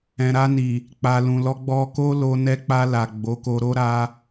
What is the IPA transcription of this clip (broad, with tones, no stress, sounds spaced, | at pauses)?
ɛ̃˨ ɾ a˧ n i˨ | k͡p a˨ l ũ˨ l ɔ˧ ɡ͡b ɔ˧ k o˦ l o˧ n ɛ˧ k͡p a˧ l a˨ ɡ͡b o˨˦ k o˧ ɾ o˦ ɾ a˧